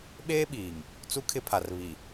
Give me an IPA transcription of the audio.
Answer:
ɓ eː˦ ɓ iː˨ ŋ | t͡s u˦ kʰ ɪ˦ pʰ a˨ r β i˨

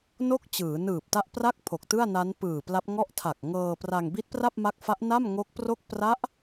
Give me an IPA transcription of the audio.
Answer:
n o˥˩ k̚ t͡ɕ ɯː˩˦ n ɯː˨˩ p̚ t a˦˥ ʔ p r a˥˩ k̚ pʰ o˨˩ k̚ t ɯ˥˩ a̯ n a˦˥ n p ɯː˨˩ p l a˦˥ p̚ ŋ ɔ˥˩ ʔ tʰ a˨˩ k̚ ŋ ɤː˧ p r a˧ ŋ b i˦˥ t̚ p r a˥˩ p̚ m a˦˥ k̚ f a˦˥ ʔ n a˥˩ m ŋ o˦˥ k̚ p r o˥˩ k̚ p r a˦˥ ʔ

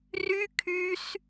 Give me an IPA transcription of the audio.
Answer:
r y kʰ y s

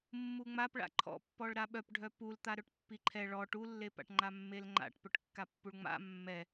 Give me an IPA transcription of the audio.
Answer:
mː u ŋ͡m a p ɭ a̰ ǃʰ ɔ̰ pː ɔ ɭ ɾ a ɓ œ p ɖʱ œ p u l t̪ a ɾ œ ʈ pː i ǃʰ ɛ ɭ ɔ ʈ u lː e p a̰ ʈ ŋ͡ǃ a mː e l ŋ͡ǃ a̰ ʈ p œ ʈ kː a pː u ɭ ŋ͡m a̰ mː ɛ

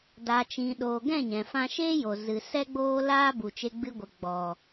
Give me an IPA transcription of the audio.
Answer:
d a˨ t͡ʃ ĩ˨ ɗ oː˨ ɡ ɛ̃˦˨ ɲ ɛ̃˨ f ã˧ ʃ eː˦ j o˨ z ɨ˨ s ɛ˦ ɡ͡b oː˦ l aː˦ b u˨ t͡ʃ e˧ ɡ͡b ɨ˧ ɡʷ ə˨ ɡ͡b ɔ˨

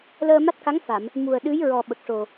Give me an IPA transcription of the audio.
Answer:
l əː˧ m a˦˥ t̚ k a˧˥ ŋ f a˨˩˨ m | m u˨˩ ə̯ ɗ ɨ˧˥ j ɹ ɔ˨˩ ɓ ə˨˩ k̚ ʂ o˨˩

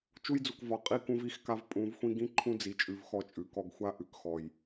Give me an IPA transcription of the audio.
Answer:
t͡ʃ u˦ j d͡z u˨ k v ɒ˨ qʼ i˦ k ũ˦ v i˦˨ x k a˦ v pʼ ũ˨˦ v xʷ ĩ˦ ɡ ĩ˦ ǃʰ ũ˦ d͡z i˨ t͡ʃʼ ʉ˨ v x ɔ˦ t͡ʃʼ ʉ˨ k ɔ˦ ɡ xʷ a˦ ʔ ʉ˨ k x ɔ˨ j

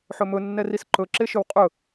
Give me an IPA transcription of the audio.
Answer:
ħ ɵ m ɵ nː ɛ r i s ǃ ɵ ǁ e ʃ ɵ w qʼ ɵ

